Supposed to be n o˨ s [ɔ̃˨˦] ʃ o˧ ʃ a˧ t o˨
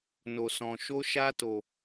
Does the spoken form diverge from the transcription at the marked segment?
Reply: yes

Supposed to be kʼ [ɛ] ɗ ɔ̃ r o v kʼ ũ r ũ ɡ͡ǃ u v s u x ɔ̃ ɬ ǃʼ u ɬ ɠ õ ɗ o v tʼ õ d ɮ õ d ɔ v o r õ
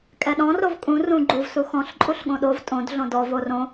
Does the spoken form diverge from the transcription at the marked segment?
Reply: no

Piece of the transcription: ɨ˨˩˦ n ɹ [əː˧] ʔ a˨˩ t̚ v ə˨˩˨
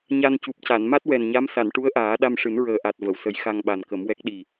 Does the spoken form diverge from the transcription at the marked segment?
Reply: yes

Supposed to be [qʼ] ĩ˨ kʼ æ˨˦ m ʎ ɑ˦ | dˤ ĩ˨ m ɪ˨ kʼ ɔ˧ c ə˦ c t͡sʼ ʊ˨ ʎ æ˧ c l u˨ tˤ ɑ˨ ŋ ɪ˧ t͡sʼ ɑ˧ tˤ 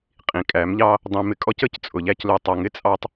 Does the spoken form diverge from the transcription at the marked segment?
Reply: no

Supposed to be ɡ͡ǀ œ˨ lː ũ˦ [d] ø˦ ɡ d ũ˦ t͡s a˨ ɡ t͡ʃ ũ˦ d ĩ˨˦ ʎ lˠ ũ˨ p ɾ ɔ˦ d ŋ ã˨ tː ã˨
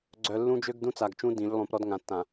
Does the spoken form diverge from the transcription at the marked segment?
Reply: yes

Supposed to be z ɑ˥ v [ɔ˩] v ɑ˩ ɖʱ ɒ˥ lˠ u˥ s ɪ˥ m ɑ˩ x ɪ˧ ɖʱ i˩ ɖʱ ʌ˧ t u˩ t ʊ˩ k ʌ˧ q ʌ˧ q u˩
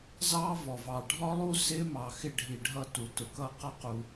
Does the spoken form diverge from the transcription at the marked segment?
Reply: no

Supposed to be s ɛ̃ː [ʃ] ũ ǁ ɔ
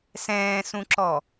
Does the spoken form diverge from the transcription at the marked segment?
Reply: yes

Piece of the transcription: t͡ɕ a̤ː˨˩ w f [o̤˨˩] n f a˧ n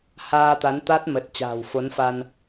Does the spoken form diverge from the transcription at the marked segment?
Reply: yes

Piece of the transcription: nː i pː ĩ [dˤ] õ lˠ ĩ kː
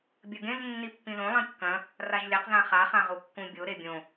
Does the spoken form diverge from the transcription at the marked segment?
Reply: yes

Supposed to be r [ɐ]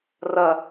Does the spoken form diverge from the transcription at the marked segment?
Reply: no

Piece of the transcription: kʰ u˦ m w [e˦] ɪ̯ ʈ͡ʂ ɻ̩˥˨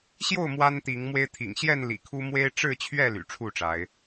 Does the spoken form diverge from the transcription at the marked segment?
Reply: no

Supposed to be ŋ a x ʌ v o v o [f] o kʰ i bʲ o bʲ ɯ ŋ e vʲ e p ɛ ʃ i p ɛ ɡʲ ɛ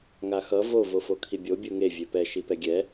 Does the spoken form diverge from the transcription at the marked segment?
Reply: no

